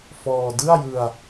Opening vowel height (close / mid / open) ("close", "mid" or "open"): mid